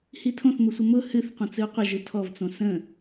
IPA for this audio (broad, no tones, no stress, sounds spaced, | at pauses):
h i tʰ õ θ m ʊ sʷ ə m ʊ h ɨ θ qʷ ə̃ t͡s ɨ u̯ qʷ ə ʒ ɨ tʰ ɔ v t͡s õ s ə̃